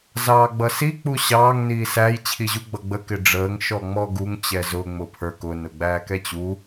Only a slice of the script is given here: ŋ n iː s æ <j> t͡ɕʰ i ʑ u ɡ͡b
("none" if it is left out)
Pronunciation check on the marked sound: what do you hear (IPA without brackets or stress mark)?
j